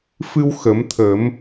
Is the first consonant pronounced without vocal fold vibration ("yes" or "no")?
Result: yes